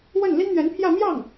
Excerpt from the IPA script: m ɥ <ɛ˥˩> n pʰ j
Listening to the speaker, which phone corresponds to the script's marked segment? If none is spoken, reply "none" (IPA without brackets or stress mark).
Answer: ɛ˧˥